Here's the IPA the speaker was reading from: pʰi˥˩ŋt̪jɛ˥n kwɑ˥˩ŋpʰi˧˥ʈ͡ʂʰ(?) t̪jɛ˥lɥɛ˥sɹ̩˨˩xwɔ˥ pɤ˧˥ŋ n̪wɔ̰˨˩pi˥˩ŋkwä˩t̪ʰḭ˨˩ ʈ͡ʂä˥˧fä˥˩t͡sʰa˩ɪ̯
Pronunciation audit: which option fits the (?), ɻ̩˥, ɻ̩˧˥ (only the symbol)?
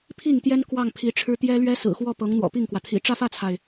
ɻ̩˥